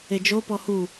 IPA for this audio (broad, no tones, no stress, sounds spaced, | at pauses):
e d͡ʒ o p ɔ h u